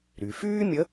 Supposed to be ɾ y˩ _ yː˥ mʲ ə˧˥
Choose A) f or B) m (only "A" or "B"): A